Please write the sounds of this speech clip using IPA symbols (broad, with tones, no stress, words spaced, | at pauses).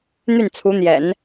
n̪y˥˩nt͡sʰu˧˥n̪jɛ̰˨˩˦n